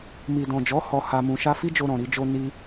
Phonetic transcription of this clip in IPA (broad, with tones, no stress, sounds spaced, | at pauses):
m i˨ d ɔ̃˨ d͡ʒ ɔ˨˦ h ɔ˧ h a˧ m ũ˧ ʃ a˦ f i˦ d͡ʒ o˧ ɾ ɔ̃˨ ɾ i˧ d͡ʒ o˧ n i˧